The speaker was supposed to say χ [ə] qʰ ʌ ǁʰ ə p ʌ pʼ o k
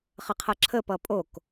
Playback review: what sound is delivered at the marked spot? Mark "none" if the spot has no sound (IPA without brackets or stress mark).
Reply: ə